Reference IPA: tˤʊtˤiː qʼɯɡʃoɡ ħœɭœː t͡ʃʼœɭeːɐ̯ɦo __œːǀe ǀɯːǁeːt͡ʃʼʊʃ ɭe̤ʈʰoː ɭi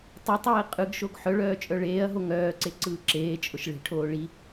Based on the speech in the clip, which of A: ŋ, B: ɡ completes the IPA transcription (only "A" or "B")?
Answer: A